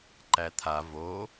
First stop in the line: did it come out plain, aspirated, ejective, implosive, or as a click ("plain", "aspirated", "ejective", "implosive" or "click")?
click